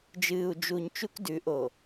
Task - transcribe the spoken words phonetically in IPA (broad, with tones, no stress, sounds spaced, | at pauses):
d͡ʒ ɨː˨ u̯ d͡ʒ u˨ ɲ t͡ʃ u˦ k d ʉ˨˦ ʔ o˨